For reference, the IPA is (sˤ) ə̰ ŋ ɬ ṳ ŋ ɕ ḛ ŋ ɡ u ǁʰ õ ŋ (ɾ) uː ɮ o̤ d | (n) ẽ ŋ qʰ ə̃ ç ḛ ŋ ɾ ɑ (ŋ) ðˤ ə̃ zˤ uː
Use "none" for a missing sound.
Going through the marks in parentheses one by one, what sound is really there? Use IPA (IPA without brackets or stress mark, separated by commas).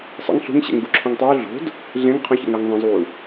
sˤ, tˤ, ɮ, ŋ